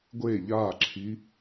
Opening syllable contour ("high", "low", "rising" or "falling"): falling